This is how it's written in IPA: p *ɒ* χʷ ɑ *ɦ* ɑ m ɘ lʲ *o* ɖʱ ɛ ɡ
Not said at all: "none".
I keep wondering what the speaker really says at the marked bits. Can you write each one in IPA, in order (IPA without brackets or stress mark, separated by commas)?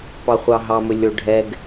ɑ, ɦ, o